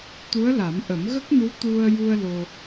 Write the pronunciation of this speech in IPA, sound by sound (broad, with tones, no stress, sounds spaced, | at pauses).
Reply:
t̪ u˧˥ ə̯ l a˨˩˦ m ʔ ə˨˩˦ m ɣ ə˦˥ k̚ n u˧˥ t̪ u˧ ə̯ j u˧ ə̯ l o˧